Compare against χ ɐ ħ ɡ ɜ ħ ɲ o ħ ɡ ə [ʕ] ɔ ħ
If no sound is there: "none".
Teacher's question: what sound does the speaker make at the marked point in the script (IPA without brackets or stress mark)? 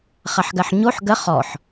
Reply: χ